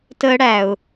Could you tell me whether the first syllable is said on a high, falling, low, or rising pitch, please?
high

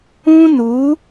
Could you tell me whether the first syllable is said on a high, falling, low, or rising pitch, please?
high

